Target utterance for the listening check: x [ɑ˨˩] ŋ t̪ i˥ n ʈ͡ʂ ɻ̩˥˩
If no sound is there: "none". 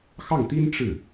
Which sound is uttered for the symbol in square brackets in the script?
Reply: ɑ˥˩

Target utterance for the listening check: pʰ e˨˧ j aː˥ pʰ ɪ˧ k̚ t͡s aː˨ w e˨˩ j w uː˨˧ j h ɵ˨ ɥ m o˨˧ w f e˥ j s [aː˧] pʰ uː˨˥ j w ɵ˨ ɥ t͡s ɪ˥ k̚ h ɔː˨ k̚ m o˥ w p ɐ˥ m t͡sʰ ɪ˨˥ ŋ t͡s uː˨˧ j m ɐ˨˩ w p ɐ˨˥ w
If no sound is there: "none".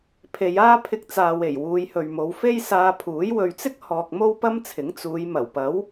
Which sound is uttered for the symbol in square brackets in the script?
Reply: aː˧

